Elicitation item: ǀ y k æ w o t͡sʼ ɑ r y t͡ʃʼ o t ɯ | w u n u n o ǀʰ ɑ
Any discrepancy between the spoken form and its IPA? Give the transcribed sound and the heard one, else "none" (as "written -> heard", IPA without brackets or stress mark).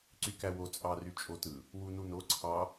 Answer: none